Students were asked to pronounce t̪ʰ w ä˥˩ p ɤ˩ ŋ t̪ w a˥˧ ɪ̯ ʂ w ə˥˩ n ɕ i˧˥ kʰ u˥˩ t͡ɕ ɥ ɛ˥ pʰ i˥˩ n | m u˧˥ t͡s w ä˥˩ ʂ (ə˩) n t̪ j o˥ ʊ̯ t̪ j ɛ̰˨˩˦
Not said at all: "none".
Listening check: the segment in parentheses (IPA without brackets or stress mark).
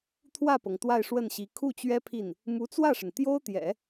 ə˩